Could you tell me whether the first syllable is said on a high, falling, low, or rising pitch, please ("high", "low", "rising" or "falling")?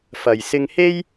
low